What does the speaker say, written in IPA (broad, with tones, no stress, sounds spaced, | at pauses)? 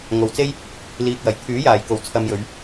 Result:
ŋ o˨ w t͡s e˥ j | l iː˨ k̚ w ɐ˨˩ j t̪ʰ yː˨˥ j aː˨˩ j k o˨˩ w t͡sʰ ɐ˧ m j ɵ˨˧ ɥ